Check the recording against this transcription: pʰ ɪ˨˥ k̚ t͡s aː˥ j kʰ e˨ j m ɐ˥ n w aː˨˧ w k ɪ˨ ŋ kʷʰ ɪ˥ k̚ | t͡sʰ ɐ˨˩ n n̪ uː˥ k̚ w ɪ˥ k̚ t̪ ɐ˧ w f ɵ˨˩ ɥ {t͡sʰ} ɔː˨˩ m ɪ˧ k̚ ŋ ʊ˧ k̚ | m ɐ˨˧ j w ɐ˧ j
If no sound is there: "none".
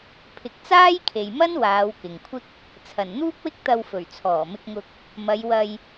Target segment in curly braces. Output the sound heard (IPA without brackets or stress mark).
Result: t͡sʰ